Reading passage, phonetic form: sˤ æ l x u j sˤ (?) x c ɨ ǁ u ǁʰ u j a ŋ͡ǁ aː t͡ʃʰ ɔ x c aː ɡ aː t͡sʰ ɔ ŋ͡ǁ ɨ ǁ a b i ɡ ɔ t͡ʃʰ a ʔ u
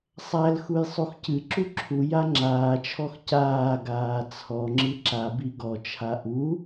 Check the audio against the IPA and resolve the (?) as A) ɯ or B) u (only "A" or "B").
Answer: B